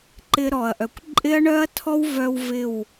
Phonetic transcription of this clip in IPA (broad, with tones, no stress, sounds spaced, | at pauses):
ǃ ɪ˦ ɾ ɔ˨ ɐ̯ ʔ œ˨ kʷ ǃʼ ɪ˦ ɐ̯ ɳ œ˦ ɐ̯ tʰ ɔ˦ w v œ˧ w v ɪ˦˨ w